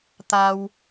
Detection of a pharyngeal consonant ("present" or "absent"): absent